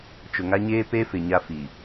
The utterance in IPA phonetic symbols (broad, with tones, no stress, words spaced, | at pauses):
t͡ʃʊ˨ ŋa˦ɲeː˦ pe˦fɪ˨ɲa˦ fi˨